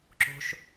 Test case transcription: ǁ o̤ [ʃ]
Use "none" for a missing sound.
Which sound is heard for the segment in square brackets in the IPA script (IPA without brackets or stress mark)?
ʃ